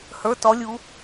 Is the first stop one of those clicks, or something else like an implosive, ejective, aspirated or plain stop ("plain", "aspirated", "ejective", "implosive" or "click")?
plain